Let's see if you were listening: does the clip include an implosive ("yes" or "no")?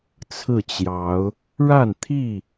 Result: no